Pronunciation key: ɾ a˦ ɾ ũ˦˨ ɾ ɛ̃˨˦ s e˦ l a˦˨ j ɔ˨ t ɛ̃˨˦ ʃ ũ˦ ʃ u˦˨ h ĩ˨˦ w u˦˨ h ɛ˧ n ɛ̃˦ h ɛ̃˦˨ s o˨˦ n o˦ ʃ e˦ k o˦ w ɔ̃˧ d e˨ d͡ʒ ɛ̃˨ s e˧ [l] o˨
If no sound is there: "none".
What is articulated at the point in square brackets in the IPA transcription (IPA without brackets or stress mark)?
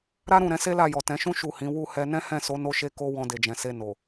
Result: n